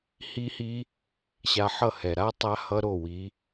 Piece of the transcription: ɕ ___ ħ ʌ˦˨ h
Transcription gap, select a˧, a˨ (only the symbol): a˧